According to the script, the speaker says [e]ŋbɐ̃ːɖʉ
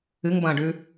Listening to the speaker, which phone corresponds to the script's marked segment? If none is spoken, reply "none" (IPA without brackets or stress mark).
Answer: ɨ